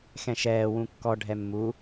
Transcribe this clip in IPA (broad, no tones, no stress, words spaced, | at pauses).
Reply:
xɛ̃ʃɛː wũkːɔ ɖʱɛmːu